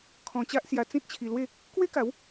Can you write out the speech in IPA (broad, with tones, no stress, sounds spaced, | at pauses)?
kʰ ɔ̃˧ t͡ɕ a˦ ʔ s j a˧ t͡s ĩ˦ t̚ t͡ɕʰ i˧ l w e˥˧ | k w e˦ k a˨˦ w